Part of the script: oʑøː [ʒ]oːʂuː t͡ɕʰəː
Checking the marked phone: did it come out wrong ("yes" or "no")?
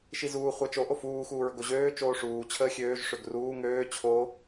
yes